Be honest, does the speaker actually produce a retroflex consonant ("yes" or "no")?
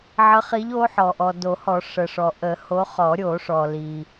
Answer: yes